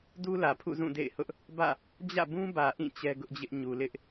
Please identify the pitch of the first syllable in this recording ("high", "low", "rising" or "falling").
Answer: high